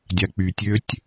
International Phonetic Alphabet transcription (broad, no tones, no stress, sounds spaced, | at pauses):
dʲ a k͡p y tʲ ø tʲ